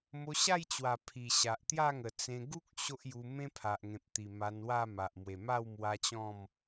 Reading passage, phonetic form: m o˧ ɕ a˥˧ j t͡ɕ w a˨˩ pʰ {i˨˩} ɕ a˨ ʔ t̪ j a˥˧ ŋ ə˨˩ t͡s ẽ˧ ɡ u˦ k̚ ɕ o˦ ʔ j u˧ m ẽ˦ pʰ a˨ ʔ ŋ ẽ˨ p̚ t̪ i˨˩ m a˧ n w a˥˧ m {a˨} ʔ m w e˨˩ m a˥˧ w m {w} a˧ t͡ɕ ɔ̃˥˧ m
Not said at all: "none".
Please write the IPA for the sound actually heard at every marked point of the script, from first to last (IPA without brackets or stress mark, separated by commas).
i˨˩, a˨, w